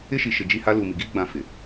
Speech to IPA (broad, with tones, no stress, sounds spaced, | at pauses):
ɪ˦ ʃ i˨ ʃ ɪ˨ d͡ʒ i˦˨ h a˦ l uː˨ m i˨ ɡ iː˦ ɡ͡b ã˦˨ f ɪ˨